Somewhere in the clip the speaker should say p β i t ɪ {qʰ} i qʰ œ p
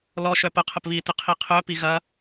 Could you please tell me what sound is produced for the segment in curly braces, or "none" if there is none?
qʰ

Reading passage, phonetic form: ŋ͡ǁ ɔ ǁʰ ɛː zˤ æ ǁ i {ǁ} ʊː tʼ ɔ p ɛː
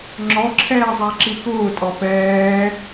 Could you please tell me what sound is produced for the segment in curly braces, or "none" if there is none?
k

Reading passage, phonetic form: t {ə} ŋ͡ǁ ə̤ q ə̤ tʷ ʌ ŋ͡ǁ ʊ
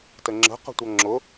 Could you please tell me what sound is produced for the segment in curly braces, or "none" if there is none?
ə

